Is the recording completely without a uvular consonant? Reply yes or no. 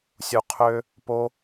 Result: no